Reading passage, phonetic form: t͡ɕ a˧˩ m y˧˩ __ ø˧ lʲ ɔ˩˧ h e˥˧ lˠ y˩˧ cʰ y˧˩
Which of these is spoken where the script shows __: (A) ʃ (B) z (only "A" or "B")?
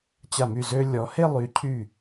B